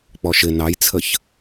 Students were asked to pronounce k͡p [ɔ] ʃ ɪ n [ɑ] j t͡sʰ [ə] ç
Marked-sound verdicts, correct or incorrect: correct, correct, correct

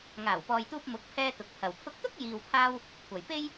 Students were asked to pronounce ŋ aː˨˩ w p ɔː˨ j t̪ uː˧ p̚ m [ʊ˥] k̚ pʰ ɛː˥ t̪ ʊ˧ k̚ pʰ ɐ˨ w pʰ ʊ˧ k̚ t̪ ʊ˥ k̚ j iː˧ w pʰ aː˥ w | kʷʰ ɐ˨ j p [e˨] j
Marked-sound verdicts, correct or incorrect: incorrect, incorrect

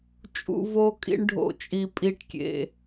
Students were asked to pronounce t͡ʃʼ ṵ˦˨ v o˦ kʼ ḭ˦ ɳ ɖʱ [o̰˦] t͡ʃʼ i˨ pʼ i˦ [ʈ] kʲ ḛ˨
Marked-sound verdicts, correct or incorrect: incorrect, correct

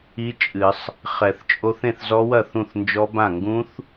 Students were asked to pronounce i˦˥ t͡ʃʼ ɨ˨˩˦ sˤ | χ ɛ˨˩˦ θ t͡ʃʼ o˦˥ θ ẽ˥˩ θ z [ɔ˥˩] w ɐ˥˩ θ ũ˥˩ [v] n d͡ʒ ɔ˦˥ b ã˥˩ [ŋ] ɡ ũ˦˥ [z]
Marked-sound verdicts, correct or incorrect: incorrect, incorrect, correct, incorrect

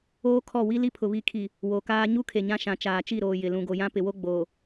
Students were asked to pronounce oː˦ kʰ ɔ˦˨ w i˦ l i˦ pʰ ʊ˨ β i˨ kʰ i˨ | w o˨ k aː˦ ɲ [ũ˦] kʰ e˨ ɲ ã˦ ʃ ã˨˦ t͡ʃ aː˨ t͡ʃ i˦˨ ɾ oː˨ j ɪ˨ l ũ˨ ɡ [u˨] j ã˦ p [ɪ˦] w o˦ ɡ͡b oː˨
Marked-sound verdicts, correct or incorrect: incorrect, incorrect, incorrect

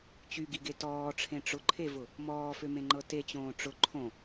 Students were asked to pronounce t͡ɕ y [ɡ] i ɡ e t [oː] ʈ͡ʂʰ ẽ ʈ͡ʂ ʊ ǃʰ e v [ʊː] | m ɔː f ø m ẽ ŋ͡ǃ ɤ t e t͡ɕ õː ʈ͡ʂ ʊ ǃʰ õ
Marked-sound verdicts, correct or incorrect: correct, incorrect, incorrect

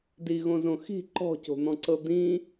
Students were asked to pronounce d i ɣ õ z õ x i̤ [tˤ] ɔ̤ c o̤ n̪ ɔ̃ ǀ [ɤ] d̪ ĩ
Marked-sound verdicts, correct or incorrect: incorrect, correct

